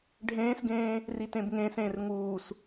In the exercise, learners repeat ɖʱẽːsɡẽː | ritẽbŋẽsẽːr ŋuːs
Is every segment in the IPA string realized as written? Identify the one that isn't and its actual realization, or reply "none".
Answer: none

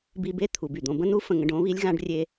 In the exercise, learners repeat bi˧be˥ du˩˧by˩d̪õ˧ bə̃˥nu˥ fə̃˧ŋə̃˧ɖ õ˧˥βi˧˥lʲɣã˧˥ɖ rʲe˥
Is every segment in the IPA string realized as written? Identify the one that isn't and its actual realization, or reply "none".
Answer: d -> t̪ʰ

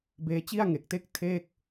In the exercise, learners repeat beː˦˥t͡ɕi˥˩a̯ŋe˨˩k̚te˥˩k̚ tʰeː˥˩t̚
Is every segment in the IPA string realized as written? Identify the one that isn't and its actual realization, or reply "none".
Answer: t̚ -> k̚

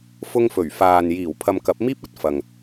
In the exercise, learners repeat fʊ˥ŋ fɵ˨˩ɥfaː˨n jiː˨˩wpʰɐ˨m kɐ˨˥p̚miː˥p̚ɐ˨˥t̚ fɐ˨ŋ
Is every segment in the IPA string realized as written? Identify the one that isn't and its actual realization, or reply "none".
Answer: none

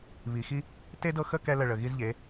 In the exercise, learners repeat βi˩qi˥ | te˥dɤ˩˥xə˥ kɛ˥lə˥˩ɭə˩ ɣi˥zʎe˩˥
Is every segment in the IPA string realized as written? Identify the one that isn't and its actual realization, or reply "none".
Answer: q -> x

